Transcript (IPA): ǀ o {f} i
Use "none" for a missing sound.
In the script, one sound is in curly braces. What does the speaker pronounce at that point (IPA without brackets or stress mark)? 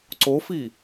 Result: f